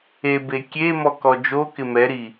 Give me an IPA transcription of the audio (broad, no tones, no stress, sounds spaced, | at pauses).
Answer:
e b e kʲ e m ɔ k ɔ d͡ʒ o k ɪ m ɛ ɾ i